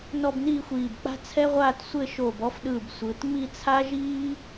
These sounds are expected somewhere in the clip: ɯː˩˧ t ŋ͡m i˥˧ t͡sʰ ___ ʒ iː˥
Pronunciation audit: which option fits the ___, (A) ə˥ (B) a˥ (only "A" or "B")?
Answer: B